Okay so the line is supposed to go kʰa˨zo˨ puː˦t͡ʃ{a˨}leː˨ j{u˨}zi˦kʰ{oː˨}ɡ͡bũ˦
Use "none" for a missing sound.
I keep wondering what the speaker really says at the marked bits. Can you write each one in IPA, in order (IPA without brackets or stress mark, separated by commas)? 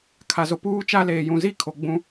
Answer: a˦, ũ˨, o˨